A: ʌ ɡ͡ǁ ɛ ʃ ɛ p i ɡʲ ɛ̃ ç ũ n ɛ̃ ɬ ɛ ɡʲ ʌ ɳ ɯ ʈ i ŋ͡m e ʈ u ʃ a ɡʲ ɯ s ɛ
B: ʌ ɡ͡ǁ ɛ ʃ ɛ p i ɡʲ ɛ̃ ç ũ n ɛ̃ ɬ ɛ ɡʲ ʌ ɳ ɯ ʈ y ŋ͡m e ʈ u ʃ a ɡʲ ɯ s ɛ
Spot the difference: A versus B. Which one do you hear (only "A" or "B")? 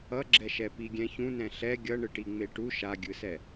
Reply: A